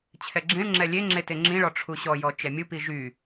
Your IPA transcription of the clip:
t͡ɕʰ ɛ ɡ͡ǁ ĩ ɭ ŋ͡ǁ ɛ lʲ e ŋ͡ǁ e t e ŋ͡ǁ ĩ ɭ ɔ ʈ͡ʂʰ u ɕ ɔ j ɔ t͡ʃ ɛ mʲ u p i ʒ y

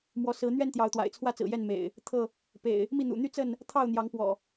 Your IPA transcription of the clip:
m w ɔ˨˦ s ɹ̩˨˦ n̪ ɥ ɛ˦ n t̪ j ɑ˨˦ ʊ̯ t̪ w a̰˨˩ ɪ̯ t͡sʰ w ä˦ t͡s ɹ̩˨˩ j ɛ˥˨ n m ḛ˨˩ ɪ̯ | t̪ʰ ɤ˥˨ | p ḛ˨˩ ɪ̯ | m i˥˨ n̪ ṵ˨˩ n̪ y˦ t͡s ə˥˨ n | t̪ʰ ɑ˥˨ ʊ̯ n̪ j ɑ˨˦ ŋ p w ɔ̰˨˩

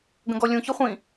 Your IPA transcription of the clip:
ɡ ə̃ ɡ ɔ lʲ ũ ç ɯ χʷ ĩ

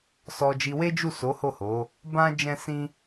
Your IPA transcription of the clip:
s ɔ˧ d͡ʒ i˧ w e˦ d͡ʒ u˦˨ s o˨˦ h o˦˨ h o˨˦ | b ã˦ d͡ʒ ɛ̃˦ s ĩ˦

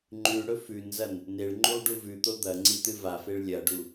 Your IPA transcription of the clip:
ŋ͡ǃ ʉ ɽ ɵ f ʉ n z ɐ n | n e ɭ ŋ͡ǃ u lˠ ɖ u v ʉ t̪ o d̪ ɐ ŋ͡ǀ i t̪ ɨ v a f e ɭ lʲ ɐ ɖ u

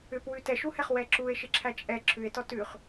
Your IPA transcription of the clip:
ʏ p w ʉ t ɛ ʃ u h ɛ χ w ɛ ǁ u e̯ ʃ ɪ ǁʰ æ t͡ʃʼ ɛ ǁʰ ʉ e̯ t ɔ t ʉ χ

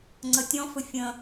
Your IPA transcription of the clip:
ŋ͡ǀ ə tʲ ɔ̃ f ɵ fʲ ə̃

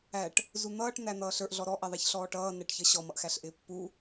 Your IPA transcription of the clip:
æ ʈ | z u n̪ ʌː ʈ n̪ æ n̪ ʌː ɬ ə˞ ʔ ɮ ɔ ɾ ɔ ʔ ɛ ðˤ æ ç ɬ ɔː ʈ ʌː n ɛ ʈ ç ʌ ɕ ɔ m ʌ ʔ x æ ɬ ʔ ɪː pː u

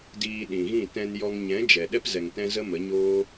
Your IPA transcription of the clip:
d iː˧ ɗ ĩ˨ ɣ ĩ˦˨ t ɛ̃˧ n j ɔ˧ ŋ ɲ ɛ̃˨˦ d͡ʒ ɛ˨ ɗ ɛ˦ p z ɛ˨ ŋ t ɛ̃˦ z ə˦ m ə˨˦ ɲ oː˦

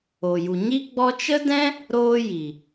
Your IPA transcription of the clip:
o˨ j u˨ ɲ i˦ ɡ͡b ɔ˦ t͡ʃ ə˦ d ɛ̃˦ | ɾ oː˦ j i˨

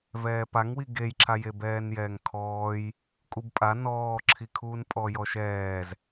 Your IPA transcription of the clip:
v ɛː p a ŋ w i ɡ e j ǁʰ a j e b ɛː n j ɛː ŋ kʰ ɔː j | kʼ u b pʼ a n ɔː ǁʰ i kʰ uː n pʼ ɔ j ɔ ʃ ɛː z

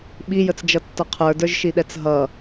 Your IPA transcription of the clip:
ɓ i j ə t͡s d͡ʒ ʌ tː ʌ qʰ ə˞ d ə˞ ʒ ʃ i ɗ ɛ t͡s ɦ ʌ

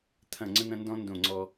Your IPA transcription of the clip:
t̪ʰ ɐ̃˨ ŋ͡ǀ ə̃˦ n̪ ɐ̃˦ n d ɔ̃˦ n d õ˦˨ ŋ͡ǀ ɔ˦

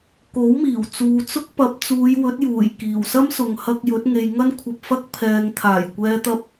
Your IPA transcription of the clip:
k o˨˥ w m iː˨˩ w t͡s uː˨ t͡s ʊ˥ k̚ p ɐ˨˥ p̚ t͡s uː˨˧ j w ɵ˨˥ t̚ j uː˨˩ j k iː˨˩ w s ɐ˥ m s ʊ˨ ŋ h ɐ˧ k̚ j ɵ˨˥ t̚ ŋ e˨ j ŋ ɐ˥ n kʷʰ ɐ˧ p̚ f ɐ˥ k̚ pʰ ɛː˨ ŋ t̪ʰ aː˨˩ j kʷ ɛː˨ t̪ ɐ˧ p̚

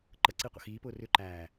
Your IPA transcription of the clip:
ǃ ə ǀ i qʷ ə̰ x iː p ʊː r ʏ ǃ æː

